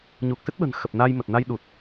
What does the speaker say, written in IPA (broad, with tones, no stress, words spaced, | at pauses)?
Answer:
ɲu˨˩k̚sɨ˦˥t̚ɓə̤˨˩n xə˨˩p̚naː˧j mə˨˩t̚na˧jɗu˨˩t̚